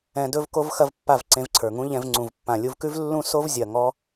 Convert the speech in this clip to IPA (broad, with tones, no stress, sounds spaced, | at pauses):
ɛ̃˧ d ɵ˦ v k o˦ v x ɐ˦ v pː a˦˨ v ǀ ẽ˧ v ǀʰ ə˞˨ ŋ ũ˦ ʎ ɛ̃˧ v ŋ͡ǀ ũ˨ v pː ã˨ lʲ u˧ v k ʉ˦ v lː ũ˦ s o˦ v zʲ ɐ˨ ŋ ɔ˦